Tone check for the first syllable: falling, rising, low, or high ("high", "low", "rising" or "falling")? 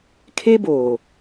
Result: high